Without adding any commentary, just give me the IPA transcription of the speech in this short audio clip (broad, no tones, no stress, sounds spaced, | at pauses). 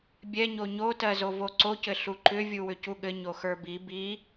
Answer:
bʲ ɛ ɲ o ɲ o t ɜ z o v o ǀ o c ɘ ɬ u ǃ ʏ vʲ u w ʏ c u ɠ ɘ ɲ o x ə˞ b i b i